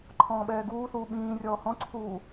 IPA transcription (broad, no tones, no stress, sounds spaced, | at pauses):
ǃʰ ɔ̃ː ɓ ɛː ɡ uː θ uː ɓ ĩː rʲ ɔː h ɔ̃ ǀʰ uː